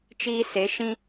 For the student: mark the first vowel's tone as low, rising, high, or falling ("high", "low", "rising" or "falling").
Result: high